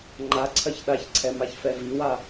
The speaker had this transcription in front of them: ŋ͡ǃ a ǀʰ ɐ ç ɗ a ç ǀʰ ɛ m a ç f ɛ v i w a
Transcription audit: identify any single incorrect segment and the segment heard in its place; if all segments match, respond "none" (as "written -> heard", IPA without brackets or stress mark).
none